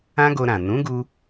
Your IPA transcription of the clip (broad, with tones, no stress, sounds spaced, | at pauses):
ã˦ ɡ o˧ ɾ ã˨ n ũ˨˦ ɡ u˧